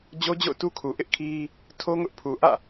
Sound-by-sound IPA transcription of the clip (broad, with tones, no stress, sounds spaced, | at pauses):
d͡ʑ o˦ d͡ʑ o̰˦˨ ʊ̯ t u˦ kʰ u˨ ʔ ɪ˦ ʔ kʰ i˦ | tʰ o˦ ŋ ʊ˦ ʔ pʰ u˨ ʔ ä̰˦˨